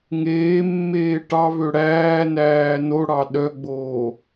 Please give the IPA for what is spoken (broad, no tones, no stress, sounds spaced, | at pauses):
ŋ eː mː eː ʈ ɑ v ø ɽ æː n æː n o ɽ ɑ ɗ œ ɡ͡b oː